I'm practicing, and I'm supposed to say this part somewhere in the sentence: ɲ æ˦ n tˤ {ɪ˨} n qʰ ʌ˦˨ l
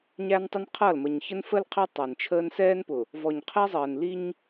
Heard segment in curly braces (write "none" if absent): ɪ˦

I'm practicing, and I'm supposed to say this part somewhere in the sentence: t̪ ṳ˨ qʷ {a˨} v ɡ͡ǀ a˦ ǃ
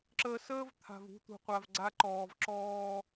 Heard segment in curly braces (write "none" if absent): a˨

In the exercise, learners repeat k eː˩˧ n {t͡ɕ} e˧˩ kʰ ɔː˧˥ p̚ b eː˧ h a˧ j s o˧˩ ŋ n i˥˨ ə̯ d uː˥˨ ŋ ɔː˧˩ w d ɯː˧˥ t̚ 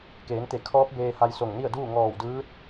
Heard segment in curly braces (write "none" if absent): t̪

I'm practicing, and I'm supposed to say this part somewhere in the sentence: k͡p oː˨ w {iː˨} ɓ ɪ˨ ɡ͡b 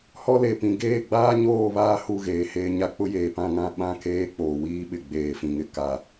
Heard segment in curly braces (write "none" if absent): iː˦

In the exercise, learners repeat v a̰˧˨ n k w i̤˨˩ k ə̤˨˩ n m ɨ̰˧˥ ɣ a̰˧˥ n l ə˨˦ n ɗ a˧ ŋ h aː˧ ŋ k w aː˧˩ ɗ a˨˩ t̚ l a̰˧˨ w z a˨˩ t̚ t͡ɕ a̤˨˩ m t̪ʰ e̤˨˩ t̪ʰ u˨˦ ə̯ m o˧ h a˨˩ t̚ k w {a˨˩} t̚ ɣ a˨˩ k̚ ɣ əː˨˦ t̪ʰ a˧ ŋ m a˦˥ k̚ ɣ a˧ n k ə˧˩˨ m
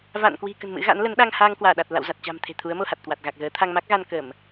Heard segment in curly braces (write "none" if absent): a˨˩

